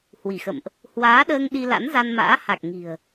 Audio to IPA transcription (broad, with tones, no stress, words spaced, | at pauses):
hwi˧˩xə̰˧˨mʔ | hwaː˨˦ɗəː˧ŋ ɗi˧la̰˧˥nza˧nma̰ː˧˥ ha˨˩k̚ ŋi̤˨˩ə̯